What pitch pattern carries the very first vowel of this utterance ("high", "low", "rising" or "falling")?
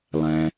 low